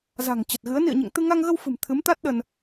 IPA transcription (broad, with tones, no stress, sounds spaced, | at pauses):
z a̤˨˩ ŋ t͡ɕ ə˨˩ t̚ ɣ ɨ˨˦ ə̯ n ḭ˧˨ ə̯ ɲ ḛ˧˨ ŋ t̪ ɨ˧ ŋ a˧ ŋ ɣ ə˧ w f ɨ̤˨˩ m t̪ʰ ɨ˨˦ m t̪ a˦˥ t̚ ɗ ə˧ n